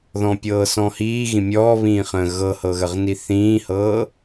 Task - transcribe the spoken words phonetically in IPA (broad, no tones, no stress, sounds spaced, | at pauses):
ð ɔ̃ pʲ ɤː s ɔ̃ h iː ɣ ĩ mʲ ɔː β ĩː χ ə̃ː ɣ ɤ h ɤ ɣ ə ʁ n i θ ĩː h ɤː